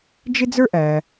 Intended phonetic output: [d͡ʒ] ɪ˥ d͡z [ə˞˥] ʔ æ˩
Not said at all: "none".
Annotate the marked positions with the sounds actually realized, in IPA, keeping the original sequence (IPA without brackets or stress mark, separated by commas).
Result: d͡ʒ, ə˞˥